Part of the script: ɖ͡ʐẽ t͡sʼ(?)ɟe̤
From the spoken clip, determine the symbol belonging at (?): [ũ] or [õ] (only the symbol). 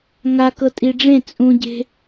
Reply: ũ